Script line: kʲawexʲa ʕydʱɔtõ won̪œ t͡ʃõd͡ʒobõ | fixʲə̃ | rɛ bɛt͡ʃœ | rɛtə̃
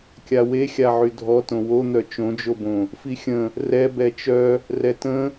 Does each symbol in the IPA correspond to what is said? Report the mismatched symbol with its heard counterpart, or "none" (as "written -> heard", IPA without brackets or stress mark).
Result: none